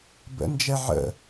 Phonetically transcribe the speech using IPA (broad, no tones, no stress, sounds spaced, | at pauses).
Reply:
b ə̰ n d͡ʒ ɛ ʕ ə̰